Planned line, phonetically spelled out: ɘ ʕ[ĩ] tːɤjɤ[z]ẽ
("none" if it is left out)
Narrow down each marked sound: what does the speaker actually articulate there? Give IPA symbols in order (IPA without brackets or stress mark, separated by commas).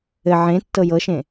ẽ, ʃ